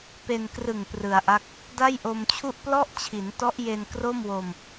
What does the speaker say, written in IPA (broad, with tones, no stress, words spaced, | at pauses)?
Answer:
pe˧nkrɯ˨˩ŋ prɯ˩˦a̯ʔa˦˥k̚ | da˥˩jʔo˧mt͡ɕʰu˥˩ʔ plɔ˥˩ʔt͡ɕʰi˩˦ntɔ˦˥ʔje˧n kro˥˩mwo˧m